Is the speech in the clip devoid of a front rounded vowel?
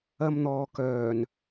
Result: no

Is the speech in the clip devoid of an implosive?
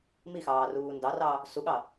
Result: no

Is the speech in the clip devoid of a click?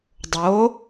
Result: yes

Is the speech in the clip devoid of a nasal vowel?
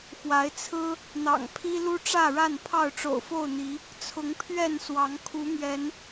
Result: yes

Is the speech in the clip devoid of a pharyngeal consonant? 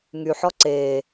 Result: no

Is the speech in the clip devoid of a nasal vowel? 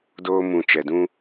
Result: no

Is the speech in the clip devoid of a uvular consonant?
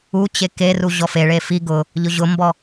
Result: yes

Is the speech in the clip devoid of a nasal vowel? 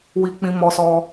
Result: no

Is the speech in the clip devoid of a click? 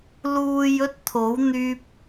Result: yes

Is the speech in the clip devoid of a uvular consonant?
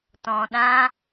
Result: yes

